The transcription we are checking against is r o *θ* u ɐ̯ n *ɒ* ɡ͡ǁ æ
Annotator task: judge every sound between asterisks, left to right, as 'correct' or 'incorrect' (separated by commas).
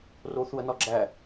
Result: correct, correct